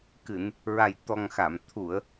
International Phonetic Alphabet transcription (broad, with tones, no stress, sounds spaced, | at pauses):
k ɨ˨˩˨ n | ɹ a˨˩ j t̪ ɔ˨˩ ŋ x a˨˩˨ m t̪ʰ u˨˩˨ ə̯